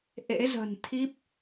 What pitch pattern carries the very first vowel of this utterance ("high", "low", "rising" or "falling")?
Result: rising